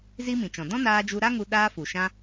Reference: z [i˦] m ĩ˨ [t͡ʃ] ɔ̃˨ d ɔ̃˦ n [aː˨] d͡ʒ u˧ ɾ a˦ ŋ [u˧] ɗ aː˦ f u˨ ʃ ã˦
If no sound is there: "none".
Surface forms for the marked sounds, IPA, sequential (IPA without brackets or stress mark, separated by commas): i˦, t͡ʃ, aː˧, u˧